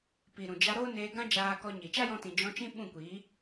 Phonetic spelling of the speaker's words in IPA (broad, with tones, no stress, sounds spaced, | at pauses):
p i˨ ɾ ũ˨ d͡ʒ a˧ ɾ o˦ n eː˧ ɡ ã˦ d͡ʒ aː˧ k ɔ˧ ɲ i˨ t͡ʃ a˦ j ɔ̃˧ t ĩ˨ d͡ʒ ɔ̃˧ t͡ʃ ĩ˦ ɓ ũ˦˨ kʷ iː˨˦